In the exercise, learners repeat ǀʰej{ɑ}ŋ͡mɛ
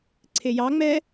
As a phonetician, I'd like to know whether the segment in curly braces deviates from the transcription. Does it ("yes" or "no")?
no